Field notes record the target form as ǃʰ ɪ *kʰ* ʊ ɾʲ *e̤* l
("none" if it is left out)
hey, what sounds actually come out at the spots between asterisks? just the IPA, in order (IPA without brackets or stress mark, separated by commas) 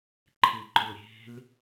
ǃ, e̤